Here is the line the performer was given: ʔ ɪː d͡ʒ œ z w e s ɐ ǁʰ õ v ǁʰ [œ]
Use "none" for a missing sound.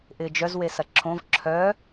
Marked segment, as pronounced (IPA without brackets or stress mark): œ